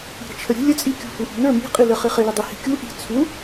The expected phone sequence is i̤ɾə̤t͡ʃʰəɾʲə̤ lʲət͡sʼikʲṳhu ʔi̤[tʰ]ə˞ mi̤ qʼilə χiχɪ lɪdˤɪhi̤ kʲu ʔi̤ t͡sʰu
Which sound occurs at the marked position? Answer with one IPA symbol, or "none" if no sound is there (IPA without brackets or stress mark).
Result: n